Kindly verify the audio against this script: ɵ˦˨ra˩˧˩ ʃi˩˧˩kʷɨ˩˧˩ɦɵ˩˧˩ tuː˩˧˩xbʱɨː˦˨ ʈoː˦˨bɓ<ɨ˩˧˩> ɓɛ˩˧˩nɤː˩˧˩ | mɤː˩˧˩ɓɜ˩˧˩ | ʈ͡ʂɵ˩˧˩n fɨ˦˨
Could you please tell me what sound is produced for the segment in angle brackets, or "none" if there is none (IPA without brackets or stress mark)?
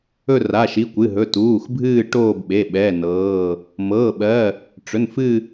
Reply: e˩˧˩